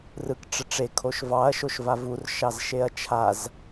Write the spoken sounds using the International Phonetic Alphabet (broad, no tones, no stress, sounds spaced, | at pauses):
r ɯ k ʈ͡ʂ ə ʈ͡ʂ e kʰ o ʃ v ɑ ɐ̯ ʃ o ʃ v a v u r ʃ ɑ z ʃ e ɐ̯ t͡ʃʰ a z